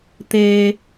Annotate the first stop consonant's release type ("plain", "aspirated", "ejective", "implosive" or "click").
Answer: plain